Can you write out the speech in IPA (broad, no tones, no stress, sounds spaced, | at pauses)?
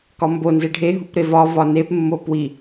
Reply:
k ɒ m b o n z e ɖʱ e ɦ u p ɾ e v ɒ v ɒ n e p mː o p w i